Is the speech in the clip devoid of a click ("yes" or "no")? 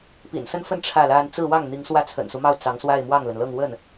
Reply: yes